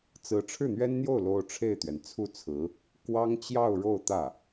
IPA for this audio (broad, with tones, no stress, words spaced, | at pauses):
t͡sɹ̩˧˥ ʈ͡ʂʰɻ̩˥˩n̪ɥɛ˥nn̪jo˥˩ʊ̯ lo˥ʊ̯ʈ͡ʂʰe˥˩ɪ̯t̪ɥɛ˩n t͡sʰu˥˩t͡sʰɹ̩˧˥ | kwɑ˥ŋt͡ɕjɑ˥˧ʊ̯ ɻo˥˧ʊ̯t̪ä˥˩